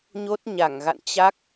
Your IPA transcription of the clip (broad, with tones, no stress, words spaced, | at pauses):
ɲo˦˥t̚ɲa˧˩ŋɣa̰˧˨n t͡ɕa˦˥k̚